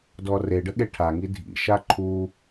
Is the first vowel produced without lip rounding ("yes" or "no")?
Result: no